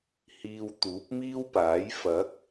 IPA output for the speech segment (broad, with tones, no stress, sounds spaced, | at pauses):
h iː˨ w t̪ uː˨˥ p̚ m iː˥ w p aː˨˥ j f ɐ˨˥ k̚